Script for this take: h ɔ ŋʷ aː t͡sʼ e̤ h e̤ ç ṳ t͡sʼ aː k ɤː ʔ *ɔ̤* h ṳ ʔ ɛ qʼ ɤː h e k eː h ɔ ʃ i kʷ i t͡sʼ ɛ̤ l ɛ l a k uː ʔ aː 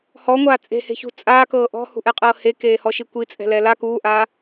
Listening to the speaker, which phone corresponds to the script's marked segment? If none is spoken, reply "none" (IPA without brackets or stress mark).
ɔ̤